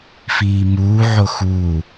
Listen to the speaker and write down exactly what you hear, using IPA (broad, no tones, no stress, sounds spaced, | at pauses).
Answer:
f iː m uː ʕ o x u